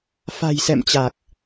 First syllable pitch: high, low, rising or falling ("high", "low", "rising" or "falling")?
low